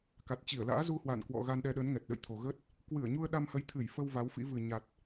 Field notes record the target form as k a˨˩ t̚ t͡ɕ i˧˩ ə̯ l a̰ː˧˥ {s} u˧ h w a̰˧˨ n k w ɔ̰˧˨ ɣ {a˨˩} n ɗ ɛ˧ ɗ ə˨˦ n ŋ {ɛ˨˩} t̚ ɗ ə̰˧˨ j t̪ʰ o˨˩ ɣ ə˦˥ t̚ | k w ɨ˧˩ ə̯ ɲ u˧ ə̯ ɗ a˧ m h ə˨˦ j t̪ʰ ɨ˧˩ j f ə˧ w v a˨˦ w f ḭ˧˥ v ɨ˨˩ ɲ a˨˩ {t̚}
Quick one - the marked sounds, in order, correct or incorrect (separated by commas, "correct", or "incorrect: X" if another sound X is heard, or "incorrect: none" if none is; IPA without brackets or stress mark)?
incorrect: z, incorrect: a˧, correct, correct